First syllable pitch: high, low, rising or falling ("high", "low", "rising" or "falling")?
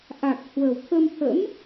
low